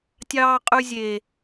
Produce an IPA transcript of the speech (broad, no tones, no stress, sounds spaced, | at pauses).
tʲ ɑː qʼ ʉ zʲ e